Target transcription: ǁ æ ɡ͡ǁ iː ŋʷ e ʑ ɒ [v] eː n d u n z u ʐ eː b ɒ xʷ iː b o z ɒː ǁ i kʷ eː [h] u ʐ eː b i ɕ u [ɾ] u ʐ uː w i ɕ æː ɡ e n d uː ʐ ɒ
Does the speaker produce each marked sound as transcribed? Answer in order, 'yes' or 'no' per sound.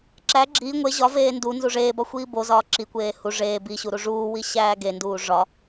yes, yes, yes

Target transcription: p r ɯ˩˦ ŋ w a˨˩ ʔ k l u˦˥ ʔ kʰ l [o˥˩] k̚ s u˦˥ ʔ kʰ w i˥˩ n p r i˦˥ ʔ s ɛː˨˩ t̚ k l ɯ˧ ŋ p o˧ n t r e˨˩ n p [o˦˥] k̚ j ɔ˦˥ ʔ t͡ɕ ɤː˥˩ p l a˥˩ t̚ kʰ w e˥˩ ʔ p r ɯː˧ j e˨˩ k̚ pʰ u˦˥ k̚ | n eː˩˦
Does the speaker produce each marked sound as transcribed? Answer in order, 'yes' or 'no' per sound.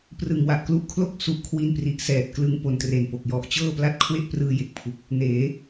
yes, no

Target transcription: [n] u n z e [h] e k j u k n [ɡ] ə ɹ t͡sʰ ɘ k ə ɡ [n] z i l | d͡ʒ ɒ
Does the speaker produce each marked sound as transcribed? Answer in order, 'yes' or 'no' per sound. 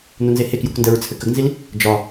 yes, yes, no, yes

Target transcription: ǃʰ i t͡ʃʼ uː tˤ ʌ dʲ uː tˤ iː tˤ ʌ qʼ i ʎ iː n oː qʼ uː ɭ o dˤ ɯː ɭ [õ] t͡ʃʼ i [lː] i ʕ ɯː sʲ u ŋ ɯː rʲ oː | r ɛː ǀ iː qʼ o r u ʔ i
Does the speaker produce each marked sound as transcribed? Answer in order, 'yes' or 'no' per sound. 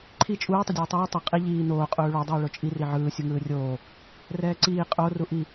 no, no

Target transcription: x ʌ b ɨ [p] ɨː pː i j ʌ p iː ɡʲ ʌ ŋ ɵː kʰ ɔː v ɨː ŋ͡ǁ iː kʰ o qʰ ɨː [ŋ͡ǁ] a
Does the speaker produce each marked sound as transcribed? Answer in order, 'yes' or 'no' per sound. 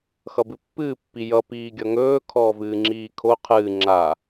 no, yes

